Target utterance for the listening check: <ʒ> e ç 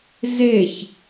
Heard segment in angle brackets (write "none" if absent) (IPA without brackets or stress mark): z